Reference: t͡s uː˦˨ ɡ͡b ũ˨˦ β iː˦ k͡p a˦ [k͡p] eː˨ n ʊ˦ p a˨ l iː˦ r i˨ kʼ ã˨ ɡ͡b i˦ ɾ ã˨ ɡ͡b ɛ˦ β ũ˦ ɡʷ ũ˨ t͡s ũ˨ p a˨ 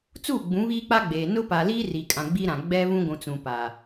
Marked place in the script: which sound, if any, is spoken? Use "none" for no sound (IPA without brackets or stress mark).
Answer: ɡ͡b